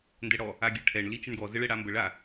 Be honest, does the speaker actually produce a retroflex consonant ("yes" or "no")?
yes